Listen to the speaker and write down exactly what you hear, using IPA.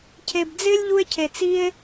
cʰ e˧ b d͡z ɪː˥ lʲ ʎ u˥ e̯ cʰ e˧ t͡s i˥ e̯

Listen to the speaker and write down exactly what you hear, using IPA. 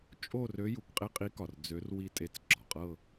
t͡ʃʼ o˥˧ r ø˧˥ j u˩ k qʼ e˥˧ qʼ i˧˥ k ɒ˩ r d͡z ø˧˥ r w i˧˩ tʼ e˧˥ t͡s ɡ͡ǁ ɒ˩ qʼ ɤ˥˧

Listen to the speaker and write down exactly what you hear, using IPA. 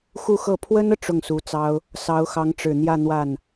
x u˥˧ x ɤ˥˩ pʰ w ə˥ n ɤ˨ ʈ͡ʂ ʊ˥˩ ŋ s u˧˥ t͡s ɑ˥ ʊ̯ | s ɑ˧˥ ʊ̯ x ɑ˧˥ ŋ ʈ͡ʂ ɻ̩˨˩ n̪ j ä˥˧ n̪ w a˥˩ n

